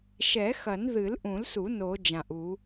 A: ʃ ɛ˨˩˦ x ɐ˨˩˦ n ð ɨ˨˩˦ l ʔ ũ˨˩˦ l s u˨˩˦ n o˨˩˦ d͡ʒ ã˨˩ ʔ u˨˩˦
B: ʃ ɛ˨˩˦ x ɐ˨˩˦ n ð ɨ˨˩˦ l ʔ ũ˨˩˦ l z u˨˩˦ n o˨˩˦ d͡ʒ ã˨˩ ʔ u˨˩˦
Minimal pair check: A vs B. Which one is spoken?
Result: A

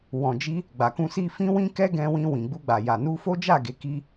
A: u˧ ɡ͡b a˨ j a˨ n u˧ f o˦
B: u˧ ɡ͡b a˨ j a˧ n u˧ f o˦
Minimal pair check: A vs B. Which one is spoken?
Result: A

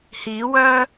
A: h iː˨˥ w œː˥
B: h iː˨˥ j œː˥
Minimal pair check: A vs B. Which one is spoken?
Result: A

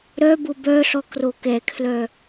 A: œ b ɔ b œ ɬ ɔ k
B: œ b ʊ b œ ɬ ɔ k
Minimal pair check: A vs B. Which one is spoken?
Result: B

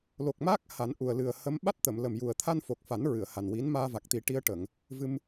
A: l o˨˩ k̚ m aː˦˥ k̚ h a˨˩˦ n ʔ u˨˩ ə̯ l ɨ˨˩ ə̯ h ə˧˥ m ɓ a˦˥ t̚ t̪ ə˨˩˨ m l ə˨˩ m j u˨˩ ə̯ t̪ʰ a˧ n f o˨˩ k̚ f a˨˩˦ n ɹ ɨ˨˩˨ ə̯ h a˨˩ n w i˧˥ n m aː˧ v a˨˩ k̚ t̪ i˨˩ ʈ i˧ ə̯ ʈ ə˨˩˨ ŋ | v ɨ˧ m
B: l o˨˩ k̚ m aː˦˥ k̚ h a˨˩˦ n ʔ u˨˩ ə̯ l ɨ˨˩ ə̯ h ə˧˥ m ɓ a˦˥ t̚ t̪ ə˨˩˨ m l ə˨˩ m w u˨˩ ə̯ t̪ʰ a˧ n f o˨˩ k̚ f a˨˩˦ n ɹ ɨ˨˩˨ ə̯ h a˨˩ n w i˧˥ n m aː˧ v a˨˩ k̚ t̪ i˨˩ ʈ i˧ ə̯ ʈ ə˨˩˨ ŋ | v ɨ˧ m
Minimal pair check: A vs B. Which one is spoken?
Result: A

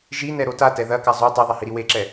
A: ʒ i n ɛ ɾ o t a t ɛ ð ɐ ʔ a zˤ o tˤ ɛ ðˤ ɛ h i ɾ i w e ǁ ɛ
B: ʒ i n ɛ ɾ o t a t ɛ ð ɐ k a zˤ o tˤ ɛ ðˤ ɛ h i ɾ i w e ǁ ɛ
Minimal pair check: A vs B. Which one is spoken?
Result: B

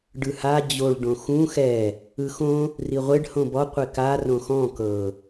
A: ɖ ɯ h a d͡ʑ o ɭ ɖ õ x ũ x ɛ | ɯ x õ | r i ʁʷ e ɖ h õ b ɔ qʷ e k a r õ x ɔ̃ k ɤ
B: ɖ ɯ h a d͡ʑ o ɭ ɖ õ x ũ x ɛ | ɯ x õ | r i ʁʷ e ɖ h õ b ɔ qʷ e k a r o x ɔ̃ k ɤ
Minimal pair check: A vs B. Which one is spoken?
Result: A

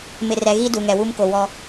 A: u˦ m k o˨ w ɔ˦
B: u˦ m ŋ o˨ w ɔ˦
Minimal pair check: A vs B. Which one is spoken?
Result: A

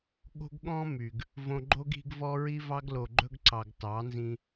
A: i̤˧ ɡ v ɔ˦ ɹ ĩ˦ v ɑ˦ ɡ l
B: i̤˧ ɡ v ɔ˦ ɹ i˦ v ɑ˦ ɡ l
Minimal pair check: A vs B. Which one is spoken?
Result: B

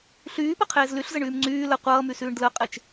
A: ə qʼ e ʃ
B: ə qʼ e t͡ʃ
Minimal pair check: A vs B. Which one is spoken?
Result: B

